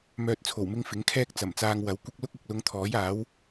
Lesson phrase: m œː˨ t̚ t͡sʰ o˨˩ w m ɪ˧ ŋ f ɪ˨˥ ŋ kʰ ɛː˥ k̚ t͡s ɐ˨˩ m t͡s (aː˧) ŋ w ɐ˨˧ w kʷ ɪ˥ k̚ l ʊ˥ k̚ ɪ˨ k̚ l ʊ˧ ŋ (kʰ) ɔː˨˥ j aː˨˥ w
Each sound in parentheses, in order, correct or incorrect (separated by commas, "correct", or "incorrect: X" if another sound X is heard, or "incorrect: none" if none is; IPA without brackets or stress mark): correct, incorrect: t̪ʰ